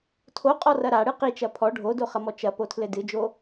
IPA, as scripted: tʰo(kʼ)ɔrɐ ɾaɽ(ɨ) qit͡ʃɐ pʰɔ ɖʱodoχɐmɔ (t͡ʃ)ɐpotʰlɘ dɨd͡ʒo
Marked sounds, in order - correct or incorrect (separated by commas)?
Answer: incorrect, correct, correct